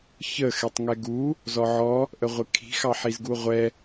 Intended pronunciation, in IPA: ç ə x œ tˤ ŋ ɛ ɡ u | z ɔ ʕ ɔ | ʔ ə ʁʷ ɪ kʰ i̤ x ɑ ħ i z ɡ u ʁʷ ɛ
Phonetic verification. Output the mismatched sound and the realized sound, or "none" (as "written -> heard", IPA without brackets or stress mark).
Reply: œ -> ɛ